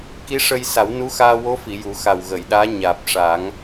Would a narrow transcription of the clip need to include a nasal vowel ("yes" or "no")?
no